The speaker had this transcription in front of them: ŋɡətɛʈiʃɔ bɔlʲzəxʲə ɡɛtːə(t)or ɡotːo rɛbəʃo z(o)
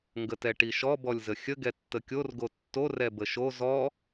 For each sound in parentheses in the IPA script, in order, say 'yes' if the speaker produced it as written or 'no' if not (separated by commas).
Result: no, no